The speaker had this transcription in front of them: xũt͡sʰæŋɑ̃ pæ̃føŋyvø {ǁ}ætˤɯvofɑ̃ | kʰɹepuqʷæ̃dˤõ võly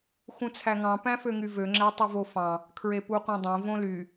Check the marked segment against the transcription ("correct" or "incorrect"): incorrect